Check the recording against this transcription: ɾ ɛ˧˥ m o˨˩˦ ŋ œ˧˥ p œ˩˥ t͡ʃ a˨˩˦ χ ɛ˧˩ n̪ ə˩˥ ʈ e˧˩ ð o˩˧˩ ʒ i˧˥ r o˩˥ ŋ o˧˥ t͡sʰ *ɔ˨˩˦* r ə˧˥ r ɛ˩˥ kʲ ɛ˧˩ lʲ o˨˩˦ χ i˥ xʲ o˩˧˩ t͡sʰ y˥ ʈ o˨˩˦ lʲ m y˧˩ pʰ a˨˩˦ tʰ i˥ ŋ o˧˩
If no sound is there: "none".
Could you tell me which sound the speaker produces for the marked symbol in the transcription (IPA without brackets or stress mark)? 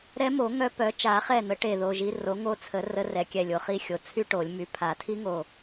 ə˨˩˦